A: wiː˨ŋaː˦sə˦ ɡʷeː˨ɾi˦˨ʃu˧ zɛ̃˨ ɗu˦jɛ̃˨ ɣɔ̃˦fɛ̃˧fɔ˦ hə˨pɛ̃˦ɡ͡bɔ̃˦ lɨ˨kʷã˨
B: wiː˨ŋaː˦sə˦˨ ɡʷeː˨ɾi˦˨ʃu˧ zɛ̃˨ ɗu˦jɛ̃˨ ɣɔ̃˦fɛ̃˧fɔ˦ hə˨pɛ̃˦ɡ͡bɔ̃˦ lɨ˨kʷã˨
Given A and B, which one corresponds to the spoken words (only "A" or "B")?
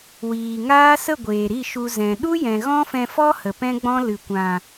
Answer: B